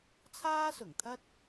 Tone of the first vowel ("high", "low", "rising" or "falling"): high